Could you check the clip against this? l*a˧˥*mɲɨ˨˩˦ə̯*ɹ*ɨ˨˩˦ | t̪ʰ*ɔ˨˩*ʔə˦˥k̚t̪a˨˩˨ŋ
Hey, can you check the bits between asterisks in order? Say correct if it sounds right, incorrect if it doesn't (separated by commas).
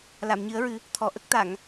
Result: incorrect, correct, correct